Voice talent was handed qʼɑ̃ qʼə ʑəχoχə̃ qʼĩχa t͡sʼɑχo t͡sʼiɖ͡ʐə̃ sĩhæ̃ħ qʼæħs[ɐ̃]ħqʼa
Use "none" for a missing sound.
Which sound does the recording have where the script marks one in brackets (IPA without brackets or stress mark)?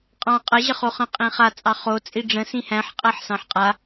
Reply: ɑ̃